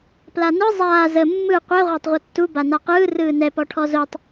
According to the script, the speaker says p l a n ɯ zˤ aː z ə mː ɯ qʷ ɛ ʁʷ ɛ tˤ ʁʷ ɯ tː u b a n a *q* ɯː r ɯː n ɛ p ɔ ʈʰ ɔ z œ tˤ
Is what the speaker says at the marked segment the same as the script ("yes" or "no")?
yes